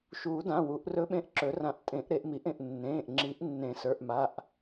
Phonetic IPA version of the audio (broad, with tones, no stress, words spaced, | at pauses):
ʃuː˨˩˦dã˩˧˩ wu˨˩˦ʔrɵ˧˥ ɓẽ˧˥ʔǁɵ˨˩˦rã˨˩˦ʔ tʼẽ˨˩˦ʔɾe˨˩˦ʔ mi˨˩˦ʔẽ˩˧˩ʔ nːẽː˩˧˩ʔ ŋ͡ǁi˨˩˦ʔnːẽ˨˩˦sə˞˩˧˩ʔ ma˩˧˩ʔ